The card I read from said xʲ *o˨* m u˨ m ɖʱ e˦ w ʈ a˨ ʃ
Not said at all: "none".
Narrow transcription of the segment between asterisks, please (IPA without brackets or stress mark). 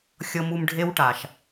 ɤ˨